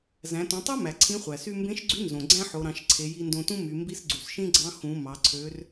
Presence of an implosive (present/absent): absent